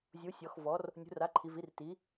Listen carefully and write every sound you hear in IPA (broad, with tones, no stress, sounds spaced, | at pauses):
zʲ u˩˥ sʲ ɔ˩˧ x v ɔ˩˥ r | nʲ ṳ˩˥ r a˩˥ ǃʰ i˩˧ v i˩˥ r t i˩˥